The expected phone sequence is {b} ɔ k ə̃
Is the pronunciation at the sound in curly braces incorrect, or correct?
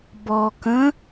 correct